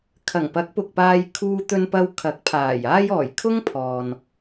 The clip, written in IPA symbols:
kʰ ɐ˨˩ ŋ p ɐ˨˥ k̚ p ʊ˨ k̚ p aː˧ j kʰ uː˧ t̪ ɵ˧ n p ɐ˧ w kʰ ɐ˨˥ k̚ pʰ aː˨˩ j aː˥ j ɔː˨˩ j kʰ ʊ˥ ŋ pʰ ɔː˨ n

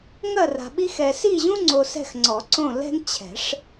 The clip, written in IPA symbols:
ŋ ɐ˦˨ r a̤˨ ɓ i˦ x ɛ˨ s i˦˨ ʑ ũ˦ ŋ͡ǀ o˨ s ɛ̤˦˨ x ŋ͡ǀ ɔ˨˩˦ ǀ õ˦˨ l ɛ̤˦ ŋ t͡ɕʰ ɛ̤˨˩˦ ʂ

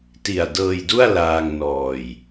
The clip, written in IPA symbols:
t i˨˩ a̯ d ɤː˧ j d u˥˩ a̯ l aː˧ ŋ n ɔː˨˩ j

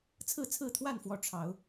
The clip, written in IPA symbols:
t͡sʰ ɹ̩˥˨ t͡sʰ ɹ̩˥˨ t̪ʰ w a˥˨ n f w ɔ˨˦ ʈ͡ʂʰ ɑ˨˦ ʊ̯

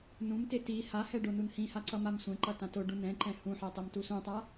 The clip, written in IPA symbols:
n ũ m t e t i h a h ɛ ɖ o n u n h ĩ h a ǀ ʌ m a m sʷ ɛ̃ ǃ ʌ t ã t o ɖ ũ n ɛ̃ ǃ ɛ̃ h ũ ħ ɛ tˤ e m t u s ũ tˤ a

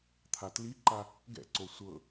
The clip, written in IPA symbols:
t̪ʰ a t l i ǃ a | ɡ ɛ̰ ǀ o sʷ ɤ

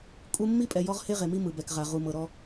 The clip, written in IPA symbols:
kʼ u˦ mː i˦ pʼ ɛ˨ j ɔ˦ ʁ h e˦ ʁ e˨ m i˦ m ɯ˨ b ɛ˨ k ʁ a˨ ʁ u˨ m ɤ˨ ɾ ɔ˦

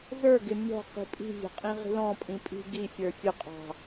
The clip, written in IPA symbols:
z ə˞ ɡ ɪ mʲ ɔ̤ q i̤ pʼ i̤ vʲ ɔ̤ qʼ ĩ ʁ i̤ l ɔ̃ pʼ ĩ pʼ i̤ ɡ i fʲ ə˞ fʲ ʊ qʼ ɑ̤

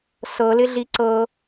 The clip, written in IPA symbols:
s ɤ l ɪ ɮ i ǀ ɤ

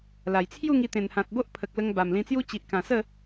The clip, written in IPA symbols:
l a˨˩ j t͡sʰ j u˥˧ ŋ i˧ t̪ ẽ˨˩ n h ã˨ t̚ b o˦ ʔ pʰ ə˨ k̚ l ə˧ ŋ b a˨˩ m l ĩ˧ t͡s j u˦ t͡ɕ i˨ ʔ k ã˨˩ s ə˥˧

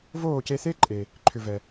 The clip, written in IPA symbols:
v oː˦˨ c e˧ θ e˦ ǃʼ e˨ | ǃʰ ʏ˨ v ɛ˨

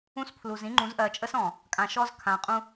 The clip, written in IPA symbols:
ũ˦ s pʰ l u˨ z ĩ˦ ŋ͡ǃ ũ˨˦ z ʔ ɜ˨ t͡ʃʼ ə˦ s ɔ̃˨ | kʼ ã˨ ʃ ɔ˦ z kʰ ã˨ qʼ ũ˦

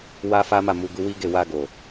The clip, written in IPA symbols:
w a˦ f a˦ m a˦˨ m u˧ ɡ u˧ w i˦ ɡ e˦˨ w a˧ ɡ o˨

